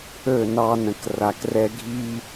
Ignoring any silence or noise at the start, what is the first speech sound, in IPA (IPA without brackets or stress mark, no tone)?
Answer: ɵ